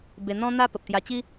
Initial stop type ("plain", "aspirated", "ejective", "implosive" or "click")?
plain